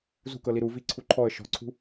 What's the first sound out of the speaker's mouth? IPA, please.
z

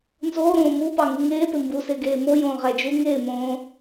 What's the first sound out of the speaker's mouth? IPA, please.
n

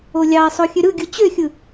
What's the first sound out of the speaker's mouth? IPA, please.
o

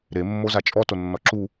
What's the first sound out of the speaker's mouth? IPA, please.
ɾ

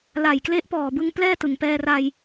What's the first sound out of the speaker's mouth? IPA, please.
l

